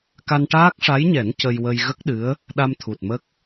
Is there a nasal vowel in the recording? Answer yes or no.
no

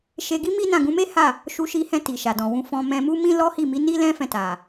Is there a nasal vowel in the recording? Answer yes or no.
yes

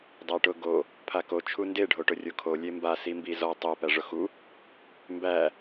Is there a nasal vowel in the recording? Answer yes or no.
no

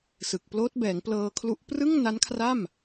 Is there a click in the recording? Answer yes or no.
no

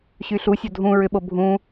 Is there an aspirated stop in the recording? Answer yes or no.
no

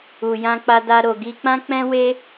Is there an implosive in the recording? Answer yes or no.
no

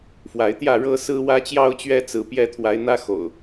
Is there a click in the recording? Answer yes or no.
no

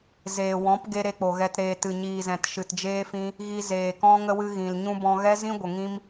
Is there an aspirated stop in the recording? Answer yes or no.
no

